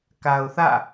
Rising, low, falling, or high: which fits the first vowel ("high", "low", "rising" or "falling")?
low